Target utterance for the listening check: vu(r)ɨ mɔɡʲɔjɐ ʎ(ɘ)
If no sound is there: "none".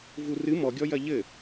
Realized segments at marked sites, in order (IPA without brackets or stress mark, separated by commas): r, ɘ